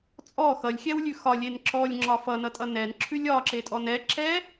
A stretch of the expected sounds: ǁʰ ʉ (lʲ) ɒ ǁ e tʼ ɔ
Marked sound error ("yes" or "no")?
no